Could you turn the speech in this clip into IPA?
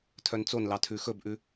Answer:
tʰœnt͡sonlɑ tʰʉxɵbʔʉ

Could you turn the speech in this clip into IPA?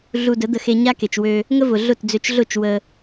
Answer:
ɮu˧də˨˦d̪ə˧xe˧ ɲa˦ke˨t͡ʃwø˧ | ŋə˦vʊ˨ ɮʊ˦˨td͡zø˧t͡ʃɮʊ˦˨t͡ʃ wə˧

